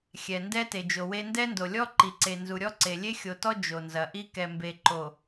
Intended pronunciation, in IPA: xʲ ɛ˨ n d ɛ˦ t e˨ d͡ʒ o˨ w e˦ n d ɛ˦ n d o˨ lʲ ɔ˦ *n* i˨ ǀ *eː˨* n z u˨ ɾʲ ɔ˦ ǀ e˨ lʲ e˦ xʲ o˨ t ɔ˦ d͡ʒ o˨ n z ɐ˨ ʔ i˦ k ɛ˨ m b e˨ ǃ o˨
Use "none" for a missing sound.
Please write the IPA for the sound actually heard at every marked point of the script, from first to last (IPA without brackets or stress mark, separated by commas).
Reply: ǃ, e˨